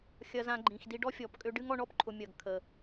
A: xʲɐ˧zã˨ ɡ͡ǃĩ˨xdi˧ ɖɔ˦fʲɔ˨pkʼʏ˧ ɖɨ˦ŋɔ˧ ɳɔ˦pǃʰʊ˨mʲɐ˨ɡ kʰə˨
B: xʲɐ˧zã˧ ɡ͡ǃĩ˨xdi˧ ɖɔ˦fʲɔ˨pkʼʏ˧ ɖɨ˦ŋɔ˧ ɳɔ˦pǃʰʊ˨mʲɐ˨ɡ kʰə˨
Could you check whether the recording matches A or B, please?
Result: B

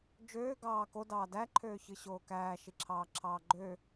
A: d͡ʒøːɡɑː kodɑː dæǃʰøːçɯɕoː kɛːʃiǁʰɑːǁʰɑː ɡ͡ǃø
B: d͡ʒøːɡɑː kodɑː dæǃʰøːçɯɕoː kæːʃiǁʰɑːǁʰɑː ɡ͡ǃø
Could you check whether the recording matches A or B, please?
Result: B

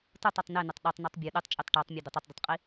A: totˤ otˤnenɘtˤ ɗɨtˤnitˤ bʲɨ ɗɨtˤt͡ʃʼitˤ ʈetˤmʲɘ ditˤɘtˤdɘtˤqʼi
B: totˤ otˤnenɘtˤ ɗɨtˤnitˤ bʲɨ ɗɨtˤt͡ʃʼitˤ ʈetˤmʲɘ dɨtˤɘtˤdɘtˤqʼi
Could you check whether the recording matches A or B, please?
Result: A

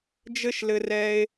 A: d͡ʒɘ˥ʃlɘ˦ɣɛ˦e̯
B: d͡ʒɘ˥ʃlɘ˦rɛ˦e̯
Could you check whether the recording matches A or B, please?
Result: B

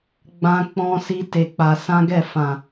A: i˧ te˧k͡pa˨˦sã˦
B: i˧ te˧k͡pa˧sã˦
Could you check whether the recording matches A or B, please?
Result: B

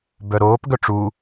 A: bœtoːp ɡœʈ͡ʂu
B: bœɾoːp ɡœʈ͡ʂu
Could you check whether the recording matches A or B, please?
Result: B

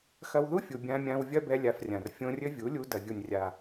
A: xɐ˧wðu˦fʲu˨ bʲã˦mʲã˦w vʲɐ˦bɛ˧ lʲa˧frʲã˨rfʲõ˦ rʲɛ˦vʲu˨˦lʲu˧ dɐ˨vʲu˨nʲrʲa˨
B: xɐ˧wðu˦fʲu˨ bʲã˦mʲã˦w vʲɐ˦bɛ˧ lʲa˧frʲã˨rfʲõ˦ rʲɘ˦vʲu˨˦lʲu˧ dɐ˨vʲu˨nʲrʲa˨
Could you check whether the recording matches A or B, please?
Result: B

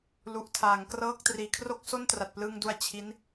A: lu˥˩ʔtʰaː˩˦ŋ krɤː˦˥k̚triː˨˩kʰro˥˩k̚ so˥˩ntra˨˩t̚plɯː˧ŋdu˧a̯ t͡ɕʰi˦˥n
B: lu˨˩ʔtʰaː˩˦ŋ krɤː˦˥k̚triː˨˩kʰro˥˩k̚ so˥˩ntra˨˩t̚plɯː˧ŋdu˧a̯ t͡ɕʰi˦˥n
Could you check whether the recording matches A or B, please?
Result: B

